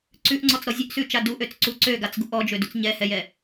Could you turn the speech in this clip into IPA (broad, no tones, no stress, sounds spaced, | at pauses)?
ǀ ʉ ʔ ŋ͡ǀ ɔ t͡s ɾ ɔ zʲ ø ʔ s ʉ t͡ʃ a d u ʔ ø t͡s ǀ u ǀ ø ɡ a t͡s ɡ u ʔ ɔ d͡ʒ ø d u t͡s ɲ ɛ h ɛ j ɛ